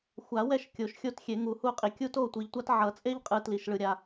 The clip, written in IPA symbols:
xʷ a˨˩˦ w ɛ˦˨ ʃ kʲ o˨˩˦ ʃ xʲ o˦˨ t xʲ e˨˩˦ ŋ u˨˩˦ h u˦˨ qʼ i˨ kʲ u˦ t o˦˨ tʷ i˨ ʎ tʷ a˦ t ʕ ʌ˨˩˦ t͡sʼ e˦ ʎ qʼ ɯ˨ t l i˨ ʃ ɭ ɯ˨ ɾʲ a˨

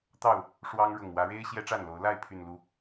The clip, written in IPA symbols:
t̪ ɑ˥˨ ʊ̯ | ʂ w ɑ˦ ŋ ɻ ʊ˨˩ ŋ w ä˨˦ ɻ e˦ ɪ̯ ɕ j ɛ˦ ʈ͡ʂ a˥˨ n l o˨˦ ʊ̯ l a˥˨ ɪ̯ pʰ y˨˩ n l u˨˦

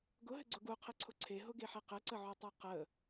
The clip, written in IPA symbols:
ɡ ʊ ɦ ɘ ɡ͡ǀ ʊ ɡ u qʰ e ǀʰ ʊ ǀʰ e ɦ ʊ ɡ e ħ e q ɘ ǀ ə ʕ u tˤ e q ə

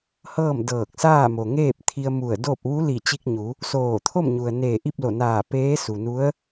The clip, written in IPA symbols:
h ɤː˥˨ m d ɤː˧˩ k̚ s aː˥˨ m o˩ ŋ eː˥˨ p̚ t̪ʰ i˧ ə̯ m u˧˩ ə̯ d o˥˨ p̚ ʋ u˧˥ l i˧˩ t͡ɕ i˧ k̚ ɲ u˩˧ | s oː˧˩ t̪ʰ o˥˨ m ɲ u˩ ə̯ n eː˧˩ ʔ i˥˨ p̚ l o˧˩ n aː˧˩ p eː˧˥ s u˩ n u˧˥ ə̯

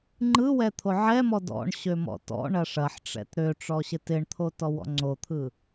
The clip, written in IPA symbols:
ŋ͡ǃ ɯ w ɛ t̪ʰ o ʕ ɛ m ɔ d ɔ̰ ɳ ɕ ø m ɔ̰ t ɔ̰ ɳ ɐ ʂ ɐ ħ ʈ͡ʂ ɛ̰ t ɾ ø ʈ͡ʂ ɔ ɕ ɪ t ɪ ɳ t̪ʰ o t ɔ w ɔ̰ ŋ͡ǀ o t̪ʰ ɯ

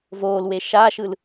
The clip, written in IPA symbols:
v oː l w e ʃ aː ʃ ɯ l

